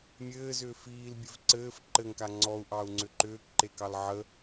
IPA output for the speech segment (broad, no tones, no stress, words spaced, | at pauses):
mʲɘːzʏː fiːlbʲɘv ǀɘːf ǃɘŋka ŋ͡ǀɔu̯ʔɑu̯ŋ͡ǀʏ ǃʏːkǃekɑl ʕə